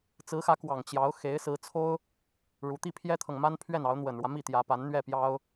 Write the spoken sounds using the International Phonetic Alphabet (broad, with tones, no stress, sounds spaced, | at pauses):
t͡s ɹ̩˧˥ x ä˧˥ k w ɑ˨˩ ŋ t͡ɕ j ɑ˧˥ ʊ̯ x e˧˥ ɪ̯ s ɹ̩˧˥ t͡sʰ o˥ ʊ̯ | ɻ u˧˥ t̪ i˥˩ pʰ j ɛ˥ t̪ʰ ɤ˨ ŋ m a˥ n pʰ ɥ ɛ˥˩ n ɑ˧˥ ʊ̯ n̪ w ə˨˩ n ɻ w ä˦ m i˥˩ t̪ j ä˧˥ p a˧˥ n n̪ ɥ ɛ˥˩ p j ɑ˥ ʊ̯